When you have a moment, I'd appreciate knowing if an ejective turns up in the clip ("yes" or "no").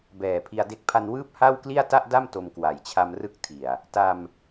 no